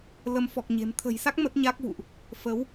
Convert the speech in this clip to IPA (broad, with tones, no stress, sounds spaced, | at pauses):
l ə˨˦ m f ɔ˨˩ k̚ ɲ e̤˨˩ m t̪ʰ ə̤˨˩ j s a˦˥ k̚ m ə˦˥ t̚ ɲ a˦˥ k̚ v ṵ˧˨ ʔ | f ə˨˦ w